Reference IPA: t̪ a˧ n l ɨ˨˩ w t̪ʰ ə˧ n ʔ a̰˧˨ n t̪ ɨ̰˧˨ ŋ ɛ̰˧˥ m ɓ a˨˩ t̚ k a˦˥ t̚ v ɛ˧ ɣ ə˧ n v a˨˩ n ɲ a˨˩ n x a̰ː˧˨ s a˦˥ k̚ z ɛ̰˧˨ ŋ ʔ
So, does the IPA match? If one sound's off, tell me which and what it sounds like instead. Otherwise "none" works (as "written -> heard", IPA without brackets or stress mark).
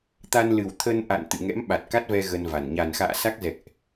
none